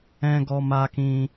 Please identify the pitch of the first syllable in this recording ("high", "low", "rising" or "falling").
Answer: high